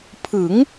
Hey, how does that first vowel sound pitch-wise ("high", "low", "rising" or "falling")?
rising